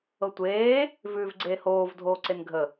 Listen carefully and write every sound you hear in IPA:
ɤ tʷ eː | v ʉː v ɡ͡ǀ eː h oː v dʱ oː ǀ e n ɡʱ ə

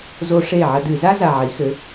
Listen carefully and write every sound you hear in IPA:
z o˦ ʂ e˥˩ ʕ ɐ˦ d ɨ˧˩˧ z a˦ z a˨˩ ʕ i˩˧ x ɘ˩˧

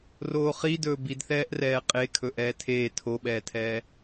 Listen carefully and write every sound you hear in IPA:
r oː χ i d ɵː b i d θ ɛː ʔ r ɛː qʼ e kʰ ɵ ʔ ɛː tʰ eː tʰ o ɓ ɛː tʰ ɛː

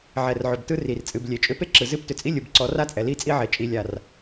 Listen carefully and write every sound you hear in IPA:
ʕ ɛ˨ r ʕ ʏ˨ b t ɯ˦ r i˨ r t͡sʼ ɨ˨ b lʲ e˨ t͡ʃʼ ʏ˦ p e˦ ǁ ɯ˨ z ɨ˦ p t ʏ˨ t͡sʼ i˦ lʲ ɯ˨ b ǀ ɔ˨˦ r a˦ t͡sʼ ɛ˨ l i˦ t͡sʼ i˦ ʕ e˨ t͡ʃʼ i˨ lʲ a˨ r

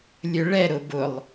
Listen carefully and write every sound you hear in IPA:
lʲ ɵ ɭ ɛ ɾ ʊ b ʊ lˠ

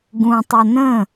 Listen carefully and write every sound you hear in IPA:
ɡ ũ tˤ o n ə̃

